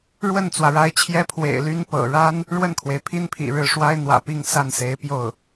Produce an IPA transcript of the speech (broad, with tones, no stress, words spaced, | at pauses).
ɻwə˥˩nt͡swä˩ɻa˧˥ɪ̯t͡ɕʰjɛ˥ pʰwḛ˨˩ɪ̯ly˥n pɤ̰˨˩ ɻa˥n | ɻwə˥˩nkʰwe˩ɪ̯pʰi˥npʰḭ˨˩ ɻɻ̩˥˩ ʂwa˥ɪ̯n̪wä̰˨˩pi˥˧ŋ sa˥˩nse˧˥ɪ̯ pjo˥˩ʊ̯